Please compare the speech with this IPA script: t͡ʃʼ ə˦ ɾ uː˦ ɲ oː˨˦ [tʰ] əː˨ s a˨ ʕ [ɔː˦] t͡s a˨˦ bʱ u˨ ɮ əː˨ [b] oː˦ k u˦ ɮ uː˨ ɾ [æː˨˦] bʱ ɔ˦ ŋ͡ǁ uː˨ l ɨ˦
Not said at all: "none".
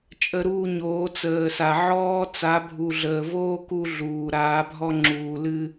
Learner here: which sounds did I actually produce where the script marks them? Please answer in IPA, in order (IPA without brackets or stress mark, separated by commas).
t͡s, ɔː˦, v, aː˨˦